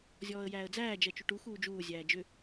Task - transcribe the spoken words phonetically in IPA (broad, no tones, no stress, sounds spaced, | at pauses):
zʲ ɔː ə̯ j æː ə̯ d͡z æː d͡ʒ ɜ t͡ʃ u ʈ u x uː d͡ʒ uː zʲ æː d͡ʒ ʏ